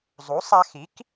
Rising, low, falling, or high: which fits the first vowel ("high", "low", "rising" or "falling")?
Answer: rising